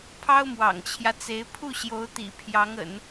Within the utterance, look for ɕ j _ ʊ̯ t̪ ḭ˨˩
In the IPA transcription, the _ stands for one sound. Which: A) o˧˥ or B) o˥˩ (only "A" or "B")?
A